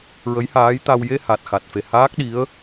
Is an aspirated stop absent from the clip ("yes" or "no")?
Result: yes